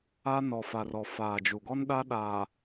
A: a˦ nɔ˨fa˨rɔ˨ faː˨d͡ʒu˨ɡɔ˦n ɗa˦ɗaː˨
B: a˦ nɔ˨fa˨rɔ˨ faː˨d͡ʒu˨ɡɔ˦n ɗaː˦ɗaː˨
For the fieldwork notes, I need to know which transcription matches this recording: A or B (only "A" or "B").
A